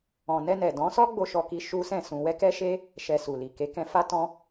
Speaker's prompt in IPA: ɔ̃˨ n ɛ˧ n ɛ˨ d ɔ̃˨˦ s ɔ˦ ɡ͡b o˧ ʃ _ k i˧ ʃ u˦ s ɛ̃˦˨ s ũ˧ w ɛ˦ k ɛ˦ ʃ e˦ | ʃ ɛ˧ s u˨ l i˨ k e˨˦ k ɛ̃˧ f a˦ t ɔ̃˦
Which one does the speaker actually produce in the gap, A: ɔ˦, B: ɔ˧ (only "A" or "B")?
B